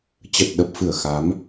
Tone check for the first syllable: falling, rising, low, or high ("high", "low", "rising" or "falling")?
low